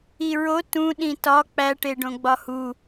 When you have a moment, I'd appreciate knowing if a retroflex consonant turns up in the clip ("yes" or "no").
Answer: yes